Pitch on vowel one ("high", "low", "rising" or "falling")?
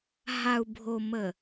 low